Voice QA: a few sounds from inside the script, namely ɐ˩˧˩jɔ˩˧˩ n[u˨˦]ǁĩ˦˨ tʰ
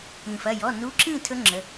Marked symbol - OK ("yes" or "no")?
yes